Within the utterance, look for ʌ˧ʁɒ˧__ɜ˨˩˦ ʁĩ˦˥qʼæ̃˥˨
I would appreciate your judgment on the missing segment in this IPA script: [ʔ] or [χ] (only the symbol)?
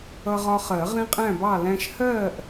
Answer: χ